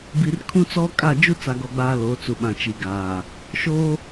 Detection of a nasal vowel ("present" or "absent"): present